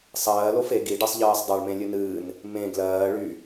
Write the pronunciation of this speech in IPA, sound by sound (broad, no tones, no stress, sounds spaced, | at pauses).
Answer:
sˤ ɜː l o f e ɡ i ɖ ɜ sˤ ʎ ɜː sˤ dˤ a ɭ m ẽ lʲ ɨ n ɨː n | m ẽ ɡ l ɜː ɭ y